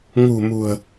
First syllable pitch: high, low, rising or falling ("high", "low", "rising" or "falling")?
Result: low